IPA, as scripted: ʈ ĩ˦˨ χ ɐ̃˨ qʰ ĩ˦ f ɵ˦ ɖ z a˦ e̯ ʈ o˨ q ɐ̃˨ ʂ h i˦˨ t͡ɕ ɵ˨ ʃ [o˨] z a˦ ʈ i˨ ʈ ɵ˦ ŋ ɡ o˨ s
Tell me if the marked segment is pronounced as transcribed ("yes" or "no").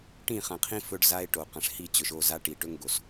no